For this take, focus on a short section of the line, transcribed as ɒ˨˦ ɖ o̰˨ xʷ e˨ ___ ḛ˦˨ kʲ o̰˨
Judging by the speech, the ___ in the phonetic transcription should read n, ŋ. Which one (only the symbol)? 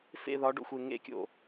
ŋ